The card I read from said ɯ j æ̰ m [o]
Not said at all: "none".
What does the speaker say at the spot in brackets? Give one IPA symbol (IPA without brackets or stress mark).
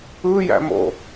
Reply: o̰